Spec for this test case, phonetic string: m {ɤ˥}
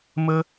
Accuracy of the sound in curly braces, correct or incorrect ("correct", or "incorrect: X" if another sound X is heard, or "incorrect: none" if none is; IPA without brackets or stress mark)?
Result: correct